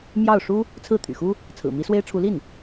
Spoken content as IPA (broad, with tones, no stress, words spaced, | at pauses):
mjɑ˥˩ʊ̯ ʂu˥ | t͡sʰɹ̩˥˩t̪ʰy̰˨˩xu˥ | t͡sʰɹ̩˨˩mi˧˥swe˥ɪ̯ʈ͡ʂʰu˧˥ li˥˩n